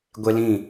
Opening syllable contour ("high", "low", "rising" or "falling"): high